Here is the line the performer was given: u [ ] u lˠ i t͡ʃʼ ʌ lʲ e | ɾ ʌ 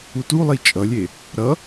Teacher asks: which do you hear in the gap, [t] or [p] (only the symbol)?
t